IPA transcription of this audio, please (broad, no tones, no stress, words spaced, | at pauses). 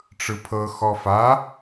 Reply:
ʈ͡ʂɯpʰɤ xɔfa